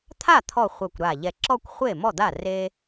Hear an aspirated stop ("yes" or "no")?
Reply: yes